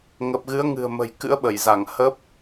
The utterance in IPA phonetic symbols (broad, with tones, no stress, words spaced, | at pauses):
ŋə˨˩p̚ɣɨ˨˦ə̯ ŋɨ̤˨˩ə̯mə̤˨˩jkɨ̰˧˥ə̯ ɓə˧˩jza˧˩ŋ hə˦˥p̚